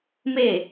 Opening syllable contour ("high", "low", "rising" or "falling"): falling